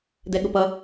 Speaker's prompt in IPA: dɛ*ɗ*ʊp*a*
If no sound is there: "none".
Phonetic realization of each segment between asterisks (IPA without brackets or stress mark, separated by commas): ɠ, ʌ